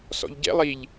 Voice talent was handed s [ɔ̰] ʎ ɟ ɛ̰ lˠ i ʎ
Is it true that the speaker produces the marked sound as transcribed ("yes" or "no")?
yes